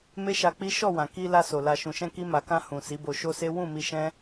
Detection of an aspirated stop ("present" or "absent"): absent